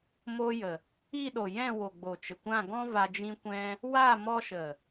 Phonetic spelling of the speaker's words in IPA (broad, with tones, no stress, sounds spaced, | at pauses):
m o˧ j ə˨ | i˦˨ ɗ o˨ j ɛ̃˦˨ w o˨ ɡ͡b o˨ t͡ʃ ə˨ kʷ ã˦˨ ɡ ɔ̃˦ v a˧ d͡ʒ ĩ˦ kʷ ɛ̃˦ | w a˦˨ m ɔ˧ ʃ ə˨